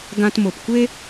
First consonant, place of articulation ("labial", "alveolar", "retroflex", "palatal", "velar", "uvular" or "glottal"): velar